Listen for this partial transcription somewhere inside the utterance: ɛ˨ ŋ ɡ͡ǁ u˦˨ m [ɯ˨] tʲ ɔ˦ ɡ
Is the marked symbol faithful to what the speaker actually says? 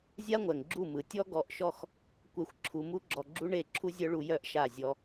yes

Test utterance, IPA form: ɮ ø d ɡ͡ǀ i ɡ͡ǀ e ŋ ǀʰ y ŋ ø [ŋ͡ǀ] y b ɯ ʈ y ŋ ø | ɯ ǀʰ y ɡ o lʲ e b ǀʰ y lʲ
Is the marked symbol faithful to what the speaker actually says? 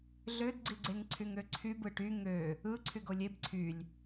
no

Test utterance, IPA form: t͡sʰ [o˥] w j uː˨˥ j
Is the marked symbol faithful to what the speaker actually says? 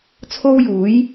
yes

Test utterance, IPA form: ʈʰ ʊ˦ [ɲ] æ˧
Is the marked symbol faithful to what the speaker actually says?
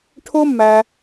no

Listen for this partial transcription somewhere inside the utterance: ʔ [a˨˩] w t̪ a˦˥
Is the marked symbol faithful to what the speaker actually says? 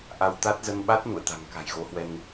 no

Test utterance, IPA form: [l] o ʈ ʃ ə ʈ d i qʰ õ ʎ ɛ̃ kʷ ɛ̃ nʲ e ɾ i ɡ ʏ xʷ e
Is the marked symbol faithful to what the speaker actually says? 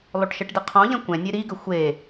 no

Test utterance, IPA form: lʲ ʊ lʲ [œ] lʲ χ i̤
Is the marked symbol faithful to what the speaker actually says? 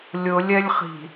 no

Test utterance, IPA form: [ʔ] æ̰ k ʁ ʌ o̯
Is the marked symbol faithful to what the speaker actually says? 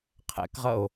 no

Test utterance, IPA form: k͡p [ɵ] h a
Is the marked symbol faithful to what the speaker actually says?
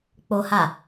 no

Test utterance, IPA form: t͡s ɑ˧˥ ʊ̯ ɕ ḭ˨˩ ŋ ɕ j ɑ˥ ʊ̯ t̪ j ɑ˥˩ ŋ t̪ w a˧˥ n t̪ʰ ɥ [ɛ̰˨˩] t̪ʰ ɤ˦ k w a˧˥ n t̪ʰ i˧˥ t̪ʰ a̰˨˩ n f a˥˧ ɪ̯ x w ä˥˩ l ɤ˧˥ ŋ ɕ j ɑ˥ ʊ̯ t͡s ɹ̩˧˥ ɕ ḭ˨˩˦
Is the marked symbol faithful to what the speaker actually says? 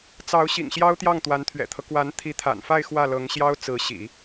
yes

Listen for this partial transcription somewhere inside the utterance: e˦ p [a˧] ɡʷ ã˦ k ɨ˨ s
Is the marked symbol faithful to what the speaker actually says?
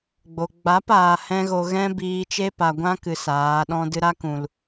no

